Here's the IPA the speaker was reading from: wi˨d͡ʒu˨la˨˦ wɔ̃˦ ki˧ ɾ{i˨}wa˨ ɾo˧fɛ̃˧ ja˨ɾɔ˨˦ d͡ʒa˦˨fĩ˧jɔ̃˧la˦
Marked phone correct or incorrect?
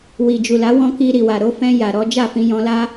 correct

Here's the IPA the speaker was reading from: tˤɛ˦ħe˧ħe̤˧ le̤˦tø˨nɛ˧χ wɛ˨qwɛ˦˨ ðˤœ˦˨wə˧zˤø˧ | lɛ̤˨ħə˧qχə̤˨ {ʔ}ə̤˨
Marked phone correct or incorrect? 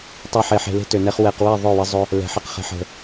incorrect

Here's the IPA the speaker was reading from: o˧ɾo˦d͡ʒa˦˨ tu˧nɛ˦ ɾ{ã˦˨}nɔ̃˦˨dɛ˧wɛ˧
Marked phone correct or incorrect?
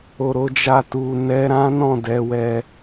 incorrect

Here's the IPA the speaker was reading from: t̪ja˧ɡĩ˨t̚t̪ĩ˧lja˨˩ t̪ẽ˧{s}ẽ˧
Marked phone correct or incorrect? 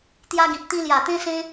correct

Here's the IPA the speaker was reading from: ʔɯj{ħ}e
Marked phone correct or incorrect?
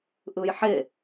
correct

